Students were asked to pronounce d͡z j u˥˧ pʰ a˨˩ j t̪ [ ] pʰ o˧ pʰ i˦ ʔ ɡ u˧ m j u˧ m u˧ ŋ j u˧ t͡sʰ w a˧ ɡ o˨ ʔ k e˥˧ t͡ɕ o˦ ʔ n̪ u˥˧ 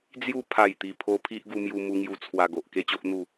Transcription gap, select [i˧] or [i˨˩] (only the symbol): i˨˩